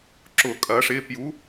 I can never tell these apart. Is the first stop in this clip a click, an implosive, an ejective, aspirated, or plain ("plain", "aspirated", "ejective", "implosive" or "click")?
click